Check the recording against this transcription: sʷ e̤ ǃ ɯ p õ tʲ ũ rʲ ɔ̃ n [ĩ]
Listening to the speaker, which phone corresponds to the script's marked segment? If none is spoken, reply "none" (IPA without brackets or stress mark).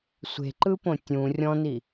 i